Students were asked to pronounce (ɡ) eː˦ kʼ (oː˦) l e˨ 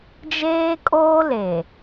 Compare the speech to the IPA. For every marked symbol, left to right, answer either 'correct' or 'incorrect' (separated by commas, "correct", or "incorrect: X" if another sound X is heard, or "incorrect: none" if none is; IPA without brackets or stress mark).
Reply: incorrect: d͡ʒ, correct